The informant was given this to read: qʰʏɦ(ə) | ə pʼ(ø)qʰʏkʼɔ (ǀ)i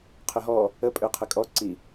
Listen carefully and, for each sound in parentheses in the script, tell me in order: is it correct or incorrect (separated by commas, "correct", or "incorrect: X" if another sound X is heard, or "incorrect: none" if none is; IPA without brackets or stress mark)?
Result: incorrect: ɔ, correct, correct